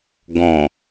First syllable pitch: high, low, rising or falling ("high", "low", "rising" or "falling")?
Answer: low